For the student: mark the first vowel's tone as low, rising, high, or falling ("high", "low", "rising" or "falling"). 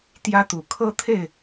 high